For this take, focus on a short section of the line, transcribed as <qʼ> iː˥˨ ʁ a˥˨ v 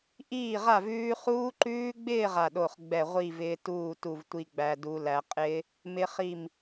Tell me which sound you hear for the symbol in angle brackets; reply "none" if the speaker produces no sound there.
ʔ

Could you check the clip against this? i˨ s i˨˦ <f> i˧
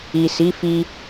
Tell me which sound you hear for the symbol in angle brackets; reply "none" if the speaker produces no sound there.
f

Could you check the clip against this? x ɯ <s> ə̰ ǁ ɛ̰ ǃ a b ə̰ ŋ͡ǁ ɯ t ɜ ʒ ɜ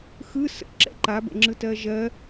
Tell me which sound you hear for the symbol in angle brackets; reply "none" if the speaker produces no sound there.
s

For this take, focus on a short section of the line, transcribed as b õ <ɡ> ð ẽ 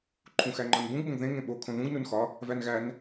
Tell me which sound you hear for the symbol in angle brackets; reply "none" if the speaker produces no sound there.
ɡ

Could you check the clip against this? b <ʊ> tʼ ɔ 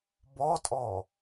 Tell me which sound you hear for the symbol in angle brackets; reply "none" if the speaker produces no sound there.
ɔ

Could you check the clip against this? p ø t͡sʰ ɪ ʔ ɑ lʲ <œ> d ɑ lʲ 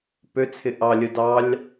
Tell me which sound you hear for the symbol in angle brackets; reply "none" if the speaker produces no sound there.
ə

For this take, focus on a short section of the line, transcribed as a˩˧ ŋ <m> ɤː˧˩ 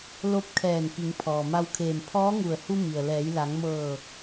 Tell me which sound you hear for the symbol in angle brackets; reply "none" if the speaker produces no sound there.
m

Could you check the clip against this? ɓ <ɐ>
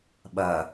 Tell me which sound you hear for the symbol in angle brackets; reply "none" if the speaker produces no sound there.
ɐ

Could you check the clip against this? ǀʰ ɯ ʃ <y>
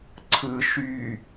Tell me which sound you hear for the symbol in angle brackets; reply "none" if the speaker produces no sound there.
y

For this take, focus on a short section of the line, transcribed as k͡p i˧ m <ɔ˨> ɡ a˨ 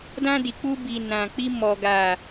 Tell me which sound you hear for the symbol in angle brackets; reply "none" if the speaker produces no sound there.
ɔ˨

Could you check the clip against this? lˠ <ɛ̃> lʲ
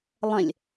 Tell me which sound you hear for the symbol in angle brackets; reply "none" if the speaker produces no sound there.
ɛ̃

